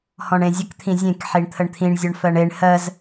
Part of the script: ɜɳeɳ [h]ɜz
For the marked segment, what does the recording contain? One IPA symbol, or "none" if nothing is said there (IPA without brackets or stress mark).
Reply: h